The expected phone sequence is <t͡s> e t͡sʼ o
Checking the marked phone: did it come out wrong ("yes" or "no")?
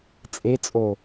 yes